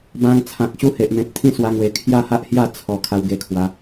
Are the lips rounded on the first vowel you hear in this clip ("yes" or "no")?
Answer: no